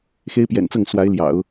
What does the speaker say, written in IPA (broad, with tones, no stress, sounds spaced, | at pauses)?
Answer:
x e˥ ɪ̯ p j ɛ̰˨˩ n t͡s ɤ˥˩ ŋ s w a˧˥ ɪ̯ l j ɑ̰˨˩˦ ʊ̯